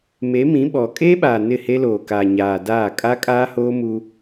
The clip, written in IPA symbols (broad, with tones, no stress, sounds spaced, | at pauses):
m e˨˦ m ĩ˨˦ ɓ ɔ˨ kʼ eː˦ ɓ aː˨ n ɪ˦˨ h e˦ l oː˨ k aː˨ ɲ aː˨ d aː˦˨ kʼ a˦ kʼ aː˦ h oː˦ m u˦